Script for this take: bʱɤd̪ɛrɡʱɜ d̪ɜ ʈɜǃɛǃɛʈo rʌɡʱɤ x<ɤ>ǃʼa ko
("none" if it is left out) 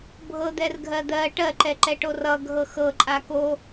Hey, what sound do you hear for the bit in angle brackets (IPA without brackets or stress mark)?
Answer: ɤ